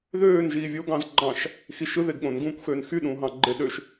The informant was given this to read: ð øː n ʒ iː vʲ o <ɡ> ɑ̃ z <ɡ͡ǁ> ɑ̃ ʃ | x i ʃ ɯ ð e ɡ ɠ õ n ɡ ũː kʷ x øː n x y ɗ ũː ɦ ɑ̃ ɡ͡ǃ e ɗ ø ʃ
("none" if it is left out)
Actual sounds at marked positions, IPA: ɡ, ɡ͡ǃ

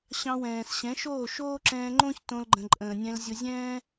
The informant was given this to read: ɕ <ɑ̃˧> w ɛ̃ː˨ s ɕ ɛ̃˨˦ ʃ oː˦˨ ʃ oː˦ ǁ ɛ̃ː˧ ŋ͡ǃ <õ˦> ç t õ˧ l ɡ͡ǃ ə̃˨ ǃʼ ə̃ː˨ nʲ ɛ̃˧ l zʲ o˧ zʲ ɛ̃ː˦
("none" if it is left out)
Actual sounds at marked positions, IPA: ɑ̃˧, õ˦

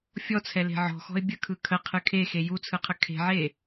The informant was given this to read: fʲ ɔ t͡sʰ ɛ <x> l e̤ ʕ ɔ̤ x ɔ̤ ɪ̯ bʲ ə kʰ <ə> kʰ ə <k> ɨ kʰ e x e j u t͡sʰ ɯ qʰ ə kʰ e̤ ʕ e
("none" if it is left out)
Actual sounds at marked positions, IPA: none, ɯ, qʰ

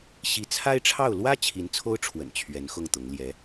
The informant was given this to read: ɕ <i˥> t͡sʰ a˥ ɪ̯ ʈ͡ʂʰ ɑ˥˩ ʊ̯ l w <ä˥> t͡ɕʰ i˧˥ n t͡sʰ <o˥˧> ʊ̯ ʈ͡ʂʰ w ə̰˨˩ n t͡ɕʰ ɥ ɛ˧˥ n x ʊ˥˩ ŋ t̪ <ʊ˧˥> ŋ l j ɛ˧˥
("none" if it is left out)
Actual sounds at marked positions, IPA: i˧˥, ä˥, o˥, ʊ˧˥

